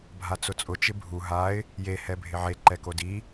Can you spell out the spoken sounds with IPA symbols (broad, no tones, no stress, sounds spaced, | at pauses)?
bʱ a t͡s ʊ t͡sʼ ʊ t͡ʃ ɪ bʱ u ɦ a ɪ̯ | j e h ɛ bʱ ɪ ʕ e ǃ ɛ k o d i